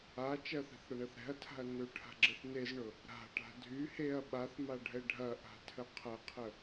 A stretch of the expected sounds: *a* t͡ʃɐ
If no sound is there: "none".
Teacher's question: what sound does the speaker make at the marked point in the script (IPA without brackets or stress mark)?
a